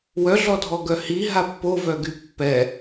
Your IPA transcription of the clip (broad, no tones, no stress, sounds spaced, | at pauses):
w œ ɮ ɔ dʱ ɔ ɡ œ h i ɦ a pː o v œ ɡ y pː ɛ